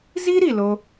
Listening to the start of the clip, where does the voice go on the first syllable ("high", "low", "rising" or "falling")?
high